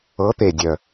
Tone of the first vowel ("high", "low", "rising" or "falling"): rising